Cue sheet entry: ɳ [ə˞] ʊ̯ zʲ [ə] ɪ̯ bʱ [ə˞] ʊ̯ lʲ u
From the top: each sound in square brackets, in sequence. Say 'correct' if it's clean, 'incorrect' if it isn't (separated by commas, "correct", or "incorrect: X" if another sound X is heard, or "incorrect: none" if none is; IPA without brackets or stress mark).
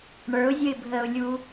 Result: correct, correct, incorrect: ə